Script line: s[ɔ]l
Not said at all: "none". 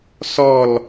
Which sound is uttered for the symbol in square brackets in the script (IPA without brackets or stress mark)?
ɔ